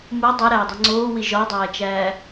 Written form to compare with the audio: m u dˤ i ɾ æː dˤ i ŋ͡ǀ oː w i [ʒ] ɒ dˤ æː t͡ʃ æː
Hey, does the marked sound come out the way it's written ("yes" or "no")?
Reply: yes